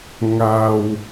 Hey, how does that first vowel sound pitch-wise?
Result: low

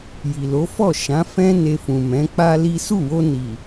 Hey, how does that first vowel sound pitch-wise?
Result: low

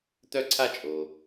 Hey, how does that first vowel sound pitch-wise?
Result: high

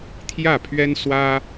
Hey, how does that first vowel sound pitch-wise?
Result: falling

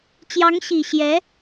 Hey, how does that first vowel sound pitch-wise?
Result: rising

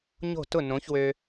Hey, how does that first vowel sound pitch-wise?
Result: falling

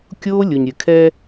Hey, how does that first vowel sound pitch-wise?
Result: high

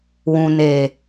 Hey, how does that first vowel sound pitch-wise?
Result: low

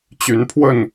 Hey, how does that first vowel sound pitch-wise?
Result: rising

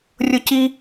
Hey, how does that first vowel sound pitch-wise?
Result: high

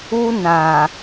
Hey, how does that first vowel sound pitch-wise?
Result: high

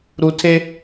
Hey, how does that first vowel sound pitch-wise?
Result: low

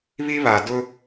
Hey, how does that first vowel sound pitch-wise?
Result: high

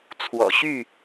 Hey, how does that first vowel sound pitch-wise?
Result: low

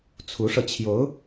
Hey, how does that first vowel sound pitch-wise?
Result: rising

